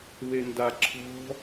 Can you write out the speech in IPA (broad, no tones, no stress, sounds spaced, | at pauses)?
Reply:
β e n d a ǁʰ ɔ̤